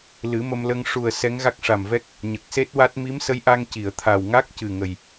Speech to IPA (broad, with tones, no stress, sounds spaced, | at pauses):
l ɨ˨˩˦ m ə˧ m l ə˧ ŋ ʂ u˨˩ ə̯ s ɛ˧˥ ŋ ɣ a˦˥ k̚ ʂ a˨˩ m v ɛ˦˥ k̚ | ɲ ə˨˩ k̚ s e˦˥ t̚ w a˦˥ t̚ m i˧˥ m s ə˧˥ j ʔ a˧ ŋ c i˨˩˨ ə̯ t̪ʰ a˨˩ w ŋ a˦˥ k̚ c ɨ˨˩ ŋ ə˨˩ j